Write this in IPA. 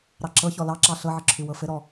ɾ ɑ ǁ ɤ ç ɔ l ɑ ǁ ɑ ɬ ɤ ʕ ə ǁʰ ʉ w ɤ f ɘ ɾ ɔ

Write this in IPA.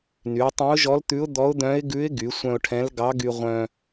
n y˩˧ ʊ̯ tˤ œ̃˧˥ ʊ̯ ʒ ɔ˧˥ l t̪ ʉ˧˥ ʊ̯ d̪ ɔ˧˥ ʊ̯ d̪ œ̃˧˥ ɪ̯ ɡ ʉ˧˥ ɪ̯ ɡ y˩˧ sʷ œ̃˧ ʊ̯ ʈʰ ɛ̃˧˥ l ɡ ɑ˧˥ ɡ y˧ ʁʷ œ̃˧

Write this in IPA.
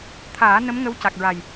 t̪ʰ aː˨˩˦ n ə˧˥ m ŋ ə˧˥ w c a˨˩ k̚ ɹ a˨˩ j

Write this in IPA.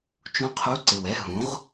t͡ʃ ũ˦˥ qʰ u˧˥˧ ǀ ɪ˨˩ w ɛ˧˥˧ ɦ ũ˩˥ ʁ

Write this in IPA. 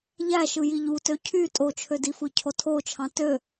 ʎ æ ʃ ɯ j i ʎ u t ø cʰ y tʼ o t͡ʃʰ ø d i f ɯ cʰ o tʰ o t͡ʃʰ ɑ̃ t ø

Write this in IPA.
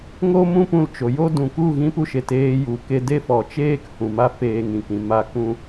ŋ o˦ m ũ˦ p ũ˧ l t͡ʃ o˨ j o˦ d ũ˨ k u˦˨ ɣ ĩ˧ p u˧ ʃ e˨ t eː˧ j u˨ k e˧ d e˦ f ɔ˨ t͡ʃ eː˦ k h ũ˨ m a˦ f eː˧ ŋ ĩ˨ k ĩ˨ m a˦˨ k ũ˦

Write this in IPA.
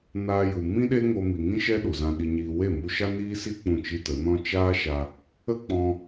n aː˧ j u˨ m ĩ˦ ɗ e˦ ŋ o˧ m i˨ ŋ ĩ˦ ʃ ɛ˦ ɗ u˨ z ã˧ ɗ i˧ ɲ iː˧ w e˦˨ m u˧ ʃ a˦ n iː˦ s i˦ k͡p ũ˦˨ t͡ʃ i˦ t ə˨˦ n ɔ̃˦ t͡ʃ aː˦ ʃ a˧ | ə˦ k͡p ɔ̃˧

